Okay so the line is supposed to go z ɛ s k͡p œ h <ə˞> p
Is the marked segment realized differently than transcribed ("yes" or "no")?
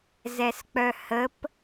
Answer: yes